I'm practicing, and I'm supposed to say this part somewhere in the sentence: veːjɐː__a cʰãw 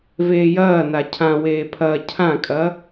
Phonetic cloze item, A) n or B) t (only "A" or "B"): A